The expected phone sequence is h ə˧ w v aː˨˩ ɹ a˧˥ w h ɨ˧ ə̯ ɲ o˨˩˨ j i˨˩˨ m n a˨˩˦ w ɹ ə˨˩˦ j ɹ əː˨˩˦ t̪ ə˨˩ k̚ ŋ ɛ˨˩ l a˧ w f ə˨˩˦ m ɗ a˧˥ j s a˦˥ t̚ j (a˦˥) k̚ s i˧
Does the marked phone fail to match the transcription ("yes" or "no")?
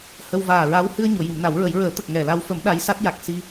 yes